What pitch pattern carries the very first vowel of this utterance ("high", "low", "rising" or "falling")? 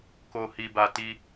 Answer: low